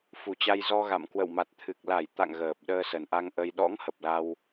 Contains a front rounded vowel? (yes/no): no